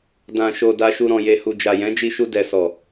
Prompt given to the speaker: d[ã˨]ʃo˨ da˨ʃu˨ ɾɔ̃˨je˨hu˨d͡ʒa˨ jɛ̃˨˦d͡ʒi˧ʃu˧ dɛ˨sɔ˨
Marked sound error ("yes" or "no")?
no